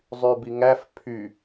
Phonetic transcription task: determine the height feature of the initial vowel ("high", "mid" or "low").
high